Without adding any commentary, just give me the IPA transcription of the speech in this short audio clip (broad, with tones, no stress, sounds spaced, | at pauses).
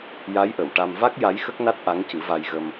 j a˧˥ j ʔ ə˨˩˨ w ʈ a˧ m v a˦˥ k̚ j a˧˥ j x ə˦˥ k̚ n a˦˥ t̚ ʔ a˧˥ ŋ c ɨ˨˩˦ v a˧ j ɣ ə˧ m